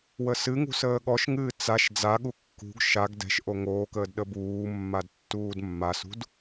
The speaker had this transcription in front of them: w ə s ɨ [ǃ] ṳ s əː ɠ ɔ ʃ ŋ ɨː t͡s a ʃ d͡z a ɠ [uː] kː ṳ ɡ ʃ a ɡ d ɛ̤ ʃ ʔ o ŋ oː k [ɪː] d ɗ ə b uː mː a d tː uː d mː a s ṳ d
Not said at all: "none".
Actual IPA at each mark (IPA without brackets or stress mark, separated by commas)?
ŋ, u, əː